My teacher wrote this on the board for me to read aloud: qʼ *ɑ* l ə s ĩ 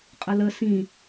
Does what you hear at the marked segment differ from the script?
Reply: yes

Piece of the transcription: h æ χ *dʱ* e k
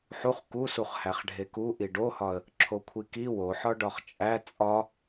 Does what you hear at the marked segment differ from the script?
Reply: yes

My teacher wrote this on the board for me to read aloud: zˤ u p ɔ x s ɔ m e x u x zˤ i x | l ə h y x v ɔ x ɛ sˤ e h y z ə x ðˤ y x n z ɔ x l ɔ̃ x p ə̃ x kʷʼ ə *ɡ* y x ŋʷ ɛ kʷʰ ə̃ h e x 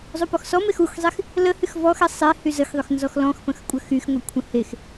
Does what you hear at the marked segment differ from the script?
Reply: yes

